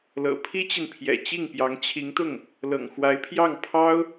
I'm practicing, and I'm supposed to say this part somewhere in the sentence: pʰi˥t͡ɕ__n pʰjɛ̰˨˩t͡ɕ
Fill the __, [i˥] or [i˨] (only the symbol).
i˨